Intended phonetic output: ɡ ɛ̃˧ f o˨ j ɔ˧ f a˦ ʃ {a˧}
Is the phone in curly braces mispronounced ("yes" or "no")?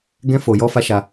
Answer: no